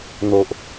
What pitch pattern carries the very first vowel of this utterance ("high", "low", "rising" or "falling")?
low